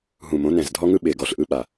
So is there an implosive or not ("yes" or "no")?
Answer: yes